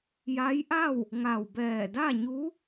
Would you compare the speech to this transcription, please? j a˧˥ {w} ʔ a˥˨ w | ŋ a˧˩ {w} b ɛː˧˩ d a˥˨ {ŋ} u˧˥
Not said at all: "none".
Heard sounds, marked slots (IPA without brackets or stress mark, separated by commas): j, w, ɲ